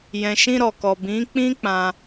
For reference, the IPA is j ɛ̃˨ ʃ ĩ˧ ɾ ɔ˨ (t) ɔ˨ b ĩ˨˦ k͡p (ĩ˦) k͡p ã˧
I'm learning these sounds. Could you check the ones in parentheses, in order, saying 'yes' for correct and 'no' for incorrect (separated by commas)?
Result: no, yes